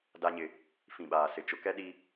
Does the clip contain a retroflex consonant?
no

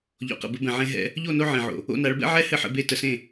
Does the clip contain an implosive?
no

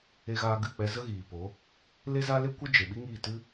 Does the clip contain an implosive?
yes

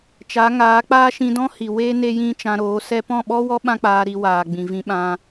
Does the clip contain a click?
no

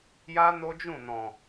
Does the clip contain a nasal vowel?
yes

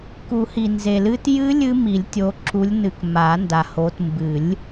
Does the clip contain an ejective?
no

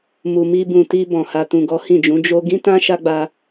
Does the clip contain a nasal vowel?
yes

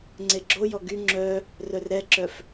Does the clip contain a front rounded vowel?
yes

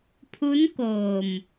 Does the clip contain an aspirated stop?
yes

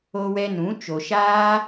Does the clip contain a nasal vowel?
yes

